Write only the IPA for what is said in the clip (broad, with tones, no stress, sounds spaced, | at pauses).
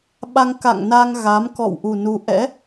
ɓ a˧ ŋ k a̰˧˨ ŋ n a˧ ŋ ɣ a˨˦ m k ɔ̰˧˨ w ʔ u˨˩ n u˧ ʔ ɛ̰˧˥